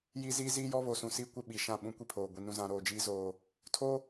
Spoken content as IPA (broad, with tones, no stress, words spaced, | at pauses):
ji˦ ziː˦ziː˦jɔ˦ βo˨sũ˨si˦kʷɪ˦˨ ɓi˨ʃã˦˨ ɓũ˦kʷi˦pʰoː˨ ɡʷi˨ nũ˦ zã˦ ɾoː˨d͡ʒiː˦ zoː˦ | tʰo˦